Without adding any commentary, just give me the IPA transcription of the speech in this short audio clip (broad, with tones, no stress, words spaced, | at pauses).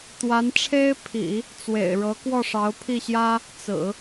t̪wa˧˥nʈ͡ʂʰe˥ɪ̯pʰḭ˨˩˦ | t͡swḛ˨˩ɪ̯ɻɤ˧˥ kwɔ˥˩ʂɑ˧˥ʊ̯pʰi˥˩ɕjä˥ | t͡sɹ̩˨˩˦